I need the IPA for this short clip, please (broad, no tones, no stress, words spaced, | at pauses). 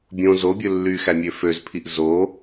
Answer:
bʲõ zobʲɵ lːyxæmʲø føzpʰiʔ zo